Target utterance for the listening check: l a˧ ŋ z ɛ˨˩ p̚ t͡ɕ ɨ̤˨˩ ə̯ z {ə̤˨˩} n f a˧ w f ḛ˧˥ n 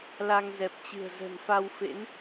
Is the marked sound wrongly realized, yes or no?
no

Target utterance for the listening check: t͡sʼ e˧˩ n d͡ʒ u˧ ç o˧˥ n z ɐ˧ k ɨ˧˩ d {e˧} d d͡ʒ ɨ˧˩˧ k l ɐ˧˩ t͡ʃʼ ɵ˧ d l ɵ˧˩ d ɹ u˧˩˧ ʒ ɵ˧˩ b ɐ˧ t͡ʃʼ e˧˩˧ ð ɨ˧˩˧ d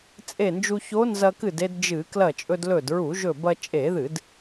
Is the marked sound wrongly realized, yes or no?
no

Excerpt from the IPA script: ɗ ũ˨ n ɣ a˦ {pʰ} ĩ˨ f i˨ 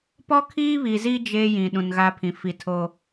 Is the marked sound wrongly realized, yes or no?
no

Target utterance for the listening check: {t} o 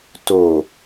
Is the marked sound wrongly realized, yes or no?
no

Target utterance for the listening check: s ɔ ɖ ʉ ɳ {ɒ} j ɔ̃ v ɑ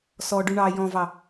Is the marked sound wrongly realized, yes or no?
yes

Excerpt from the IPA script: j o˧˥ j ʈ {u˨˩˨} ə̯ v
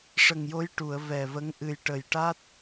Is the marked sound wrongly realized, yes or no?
no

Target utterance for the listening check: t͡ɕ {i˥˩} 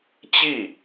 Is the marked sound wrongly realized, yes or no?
no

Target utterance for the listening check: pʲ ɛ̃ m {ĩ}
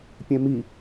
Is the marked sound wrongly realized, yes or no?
yes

